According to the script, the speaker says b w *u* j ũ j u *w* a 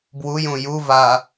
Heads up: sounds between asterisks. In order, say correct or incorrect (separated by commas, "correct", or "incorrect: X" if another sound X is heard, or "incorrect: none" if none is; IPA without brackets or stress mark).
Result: correct, incorrect: v